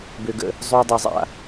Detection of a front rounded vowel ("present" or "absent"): present